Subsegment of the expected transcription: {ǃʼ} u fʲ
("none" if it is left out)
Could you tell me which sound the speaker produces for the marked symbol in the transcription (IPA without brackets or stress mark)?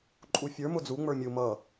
ǃʼ